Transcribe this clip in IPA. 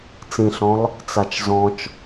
t͡sĩɬɔ̃lˠ | t͡sat͡ʃzɔ̃t͡ʃ

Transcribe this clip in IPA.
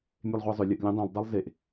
mʲelˠʁʷæzˤʏ lʲəʔ lʲẽdˤẽlˠ dˤælˠzeʔ

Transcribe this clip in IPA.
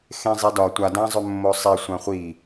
xẽzˤedɒ tʷa dãzˤʏmːosˤe sʷãχʷi

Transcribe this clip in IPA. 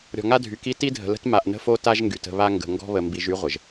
ɾʲɔ̤˨ŋa˦dʱy˨ki˦ ti˦dʱə̤˨lə̤˦t ma˨ʔnə̤˦fo˦ ta˦ʒŋɡy˨tə̤˦˨βa˦ ŋɡə̤˨ ŋɡɔ̤˦βə˨mbi˨ʒ y˦ʁʷə˨ʒ

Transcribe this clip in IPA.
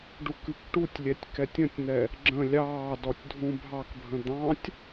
ɖukɨkʈutʲlʲɛtʲ kɛtʲə̃tʲn̪ɛ | ɡ͡ǁə̃ lʲɑːdɔtʲ dʱũbʱɑkbʱə̃ d̪ɑ̃tʲ

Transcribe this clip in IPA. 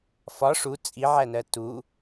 fɒ ʂu t͡sʼiʕænɜ tu

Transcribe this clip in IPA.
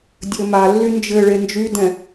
dʲɘmalːy nd͡ʒɘɭe nd͡ʒydɛ̃

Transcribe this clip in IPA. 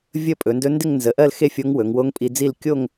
vʲə˥˨pʼɵ˩˧ndɵ˧˥ ndɪ˥˨ŋnzə˩˧ʔɜ˥˨l xe˥˨fʲo˧˥ŋ wɵ˩˧ŋwo˧˥ŋpʼi˧d͡zi˥˨l kʲo˥˨ŋ

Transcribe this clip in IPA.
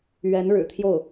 ɥɛ˧˥n ɻɻ̩˨˩t̪ʰjo˥˩ʊ̯

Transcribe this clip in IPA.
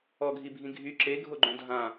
ɔɡʱibʱĩ ɡʱy ǁeɡʱoɡ͡ǃõ dʱã

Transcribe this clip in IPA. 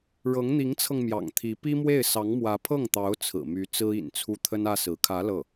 ɻɤ˧˥ŋn̪i˧˥ŋt͡sʰɤ˧ŋ mjɑ̰˨˩ŋt̪ʰi˧˥ pi˥mwe˥˩ɪ̯ sɑ˧˥ŋmwä˧˥ pʰɤ˥˩ŋt̪ɑ˧˥ʊ̯ t͡sʰɹ̩˨˩my˧˥ t͡sɹ̩˥ḭ˨˩nt͡sʰu˥˩ t̪ʰə˥nä˥sɹ̩˧˥ kʰä˧˥ lɤ˥˩

